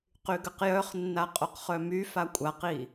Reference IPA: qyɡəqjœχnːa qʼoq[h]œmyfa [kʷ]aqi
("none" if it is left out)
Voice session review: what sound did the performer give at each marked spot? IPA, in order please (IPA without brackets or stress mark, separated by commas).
χ, kʷʼ